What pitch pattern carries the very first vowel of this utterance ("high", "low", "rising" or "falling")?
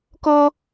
high